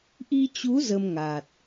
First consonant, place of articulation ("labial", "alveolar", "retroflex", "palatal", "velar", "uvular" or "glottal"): glottal